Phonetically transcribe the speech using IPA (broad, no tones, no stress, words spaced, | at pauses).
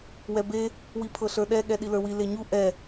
wɛbe | wipʰɤɬə˞ɗɛ ɠɛɗilə˞wi leɲu ʔɛ